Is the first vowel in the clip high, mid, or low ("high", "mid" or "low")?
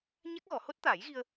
low